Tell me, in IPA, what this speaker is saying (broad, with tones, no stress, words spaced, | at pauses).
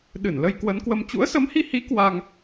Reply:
ɗɨ˧˩nlə˧j kwə˨˦nkwə˧m t͡ɕṵ˧˥ə̯sə˨˦mhi˧hi˨˦ kwa˧ŋ